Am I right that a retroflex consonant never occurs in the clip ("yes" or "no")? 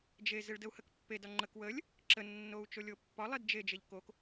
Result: no